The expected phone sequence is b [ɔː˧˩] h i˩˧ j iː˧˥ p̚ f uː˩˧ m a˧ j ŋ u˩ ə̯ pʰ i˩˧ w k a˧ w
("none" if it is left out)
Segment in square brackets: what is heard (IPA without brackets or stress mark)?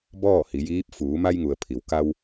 ɔː˥˨